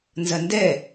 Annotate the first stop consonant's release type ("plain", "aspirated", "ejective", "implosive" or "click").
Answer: plain